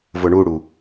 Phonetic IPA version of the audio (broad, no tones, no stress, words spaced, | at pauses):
vʊɳuɽu